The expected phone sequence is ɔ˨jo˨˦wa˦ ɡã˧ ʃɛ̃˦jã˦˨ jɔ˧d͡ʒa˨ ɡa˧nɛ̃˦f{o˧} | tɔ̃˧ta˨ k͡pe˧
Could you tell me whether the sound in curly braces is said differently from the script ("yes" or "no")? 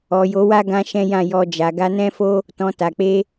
yes